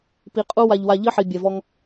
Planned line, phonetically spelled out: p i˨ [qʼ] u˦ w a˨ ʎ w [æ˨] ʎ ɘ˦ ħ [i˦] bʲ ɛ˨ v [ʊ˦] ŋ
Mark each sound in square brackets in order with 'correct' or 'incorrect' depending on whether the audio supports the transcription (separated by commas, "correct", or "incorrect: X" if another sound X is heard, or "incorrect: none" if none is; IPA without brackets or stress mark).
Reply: correct, incorrect: a˨, incorrect: i˨, incorrect: ɔ˦